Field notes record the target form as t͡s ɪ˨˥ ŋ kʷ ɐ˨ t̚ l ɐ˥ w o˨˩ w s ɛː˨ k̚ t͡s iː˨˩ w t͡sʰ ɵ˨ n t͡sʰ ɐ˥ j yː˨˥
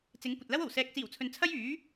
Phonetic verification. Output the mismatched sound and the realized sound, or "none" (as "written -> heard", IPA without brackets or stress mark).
none